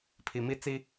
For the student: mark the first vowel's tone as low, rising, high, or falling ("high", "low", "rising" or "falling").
low